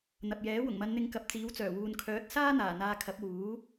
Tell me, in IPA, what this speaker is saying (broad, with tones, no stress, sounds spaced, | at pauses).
n̪ ɐ˨ p̚ j ɛː˨˥ w ʊ˨˩ ŋ m ɐ˨˧ n n̪ ɪ˨˧ ŋ k ɐ˨ p̚ t͡s iː˨˥ w t͡s œː˨˩ w uː˨ n kʰ œː˨˥ t̚ s aː˥ n̪ aː˨˩ n̪ aː˧ kʰ ɐ˨˥ p̚ w uː˨˥